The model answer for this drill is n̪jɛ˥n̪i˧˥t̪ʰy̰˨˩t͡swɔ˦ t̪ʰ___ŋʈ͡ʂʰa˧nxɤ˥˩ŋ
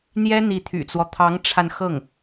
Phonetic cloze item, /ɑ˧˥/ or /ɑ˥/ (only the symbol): ɑ˧˥